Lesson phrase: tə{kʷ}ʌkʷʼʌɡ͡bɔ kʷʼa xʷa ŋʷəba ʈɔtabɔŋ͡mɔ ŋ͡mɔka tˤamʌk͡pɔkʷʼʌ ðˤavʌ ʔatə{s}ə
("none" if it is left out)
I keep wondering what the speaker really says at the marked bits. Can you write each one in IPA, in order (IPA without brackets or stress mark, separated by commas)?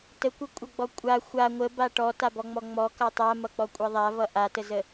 kʷ, z